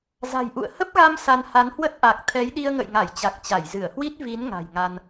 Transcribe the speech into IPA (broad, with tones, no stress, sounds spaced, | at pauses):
z a̤˨˩ j ʔ ṵ˧˨ ə̯ h ə˦˥ p̚ ɣ a˧ m s a˧ n h a˨˦ n h w ə˦˥ t̚ ʔ a˨˩ k̚ t̪ʰ ɛ˨˦ j ɗ i˧ ə̯ ŋ ə̰˧˨ j ŋ a˧˩ j t͡ɕ a˨˩ k̚ t͡ɕ a˧˩ j z ɨ˧˩ ə̯ h w i˦˥ t̚ v i˨˦ n ŋ a̤˨˩ j ŋ a˧ n